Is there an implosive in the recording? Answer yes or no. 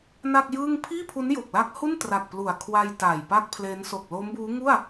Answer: no